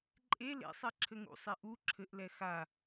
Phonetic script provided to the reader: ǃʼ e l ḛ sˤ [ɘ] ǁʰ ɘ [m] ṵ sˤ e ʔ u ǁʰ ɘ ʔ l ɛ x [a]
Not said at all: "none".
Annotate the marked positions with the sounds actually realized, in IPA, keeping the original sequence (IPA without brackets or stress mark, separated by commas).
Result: ɛ, ŋ, a